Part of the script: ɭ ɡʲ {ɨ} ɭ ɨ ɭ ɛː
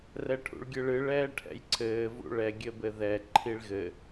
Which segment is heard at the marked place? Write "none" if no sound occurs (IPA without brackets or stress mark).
ɨ